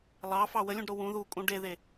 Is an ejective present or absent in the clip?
present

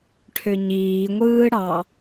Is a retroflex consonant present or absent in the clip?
present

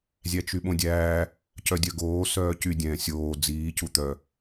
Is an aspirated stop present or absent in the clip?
absent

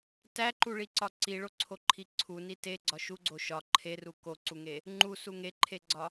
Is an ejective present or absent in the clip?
absent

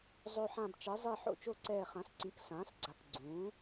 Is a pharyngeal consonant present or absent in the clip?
present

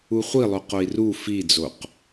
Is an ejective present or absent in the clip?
absent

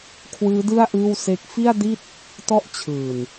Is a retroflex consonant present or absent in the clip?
absent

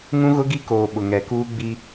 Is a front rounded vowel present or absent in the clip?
absent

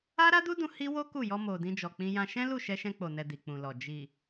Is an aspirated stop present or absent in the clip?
absent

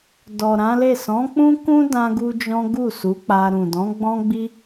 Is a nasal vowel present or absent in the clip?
present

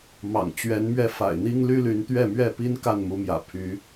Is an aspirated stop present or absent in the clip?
present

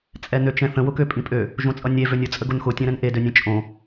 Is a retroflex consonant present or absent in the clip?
absent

